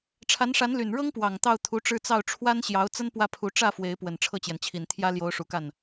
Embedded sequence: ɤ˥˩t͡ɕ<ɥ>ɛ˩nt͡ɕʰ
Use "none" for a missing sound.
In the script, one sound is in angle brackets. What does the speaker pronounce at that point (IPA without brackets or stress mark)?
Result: j